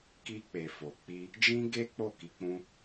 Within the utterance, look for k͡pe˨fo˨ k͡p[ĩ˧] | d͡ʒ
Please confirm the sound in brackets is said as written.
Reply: no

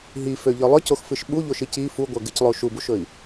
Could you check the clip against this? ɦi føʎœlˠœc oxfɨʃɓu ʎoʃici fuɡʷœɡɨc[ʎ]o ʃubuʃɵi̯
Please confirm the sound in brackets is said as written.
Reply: no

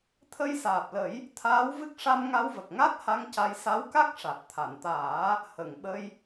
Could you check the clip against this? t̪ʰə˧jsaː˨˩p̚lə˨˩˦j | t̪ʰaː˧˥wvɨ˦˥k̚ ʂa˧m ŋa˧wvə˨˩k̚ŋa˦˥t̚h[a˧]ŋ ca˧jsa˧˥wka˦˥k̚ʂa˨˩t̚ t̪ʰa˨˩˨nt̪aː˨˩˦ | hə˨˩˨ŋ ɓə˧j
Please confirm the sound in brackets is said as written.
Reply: yes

